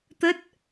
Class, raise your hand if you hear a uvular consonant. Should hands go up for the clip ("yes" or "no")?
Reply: no